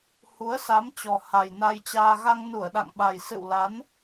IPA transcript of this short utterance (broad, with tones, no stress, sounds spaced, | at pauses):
h u˨˦ ə̯ s a˨˦ m t͡ɕ ɔ˨˩ h a˨˩ j n a˧ j t͡ɕ aː˧ ɣ a˧ ŋ n u˧˩ ə̯ ɗ a̰˧˨ ŋ ɓ a˨˩ j s ɨ̰˧˨ w l a˨˦ n